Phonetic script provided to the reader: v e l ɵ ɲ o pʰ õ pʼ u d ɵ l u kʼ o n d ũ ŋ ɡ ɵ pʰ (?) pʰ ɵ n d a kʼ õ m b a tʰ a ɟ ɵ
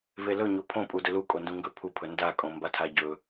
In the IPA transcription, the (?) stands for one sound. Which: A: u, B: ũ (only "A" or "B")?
A